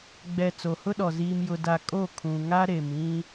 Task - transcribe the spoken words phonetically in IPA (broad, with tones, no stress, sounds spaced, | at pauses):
ɡ͡b ɛ˨ t͡s o˨ h ʊ˦ ɗ ɔ˨ z iː˨ m j ʊ˨ d a˨ kʼ o˦˨ kʰ ũ˨ ŋ a˦ ɾ e˨ m ĩ˦